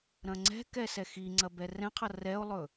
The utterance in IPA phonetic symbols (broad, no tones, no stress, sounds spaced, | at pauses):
ɾ ɐ̃ ŋ͡ǀ ɛ̤ k ɛ s ɛ x i ŋ͡ǀ ɐ b ɛ r ɛ̃ qʰ ʌ r ɛ o̯ lˠ ɵ